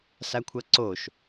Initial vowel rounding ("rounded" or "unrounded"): unrounded